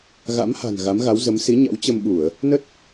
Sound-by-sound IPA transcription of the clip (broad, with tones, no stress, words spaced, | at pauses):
ɣa̰˧˥mha̤˨˩n ɣa˨˦mɣa˨˦wzə˨˦m si˨˦ɲa̰˧˥w t͡ɕə˧mɓu˧˩˨ə̯ | nə˦˥t̚